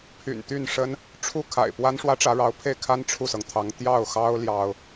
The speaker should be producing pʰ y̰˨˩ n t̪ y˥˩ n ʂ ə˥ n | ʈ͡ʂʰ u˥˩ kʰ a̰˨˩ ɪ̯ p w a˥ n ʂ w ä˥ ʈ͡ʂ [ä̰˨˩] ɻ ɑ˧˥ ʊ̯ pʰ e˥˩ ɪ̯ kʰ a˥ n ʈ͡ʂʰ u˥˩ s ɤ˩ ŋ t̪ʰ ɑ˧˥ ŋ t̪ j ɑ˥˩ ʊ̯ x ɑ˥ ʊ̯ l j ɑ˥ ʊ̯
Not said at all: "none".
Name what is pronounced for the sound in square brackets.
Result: ä˧˥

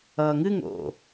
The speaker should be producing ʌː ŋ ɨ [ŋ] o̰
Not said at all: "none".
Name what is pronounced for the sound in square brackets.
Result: ŋ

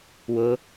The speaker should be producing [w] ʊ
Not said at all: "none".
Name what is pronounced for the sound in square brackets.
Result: w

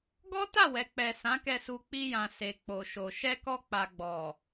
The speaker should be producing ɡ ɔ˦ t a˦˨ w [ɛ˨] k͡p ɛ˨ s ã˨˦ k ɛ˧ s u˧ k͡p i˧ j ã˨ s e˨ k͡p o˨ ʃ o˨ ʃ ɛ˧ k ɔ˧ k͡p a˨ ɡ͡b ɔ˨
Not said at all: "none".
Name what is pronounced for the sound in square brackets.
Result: ɛ˨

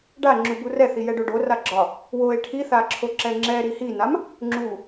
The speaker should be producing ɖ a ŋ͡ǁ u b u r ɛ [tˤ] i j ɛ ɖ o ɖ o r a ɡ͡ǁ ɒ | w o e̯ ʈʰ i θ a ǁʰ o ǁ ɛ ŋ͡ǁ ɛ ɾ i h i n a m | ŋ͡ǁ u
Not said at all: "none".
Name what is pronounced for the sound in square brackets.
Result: θ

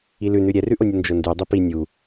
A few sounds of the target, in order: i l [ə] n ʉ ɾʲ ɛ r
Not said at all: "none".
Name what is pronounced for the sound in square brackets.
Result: ʉ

